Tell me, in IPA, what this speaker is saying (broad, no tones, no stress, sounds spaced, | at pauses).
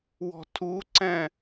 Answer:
w ɔ̤ tʰ u ǀ ɛ̃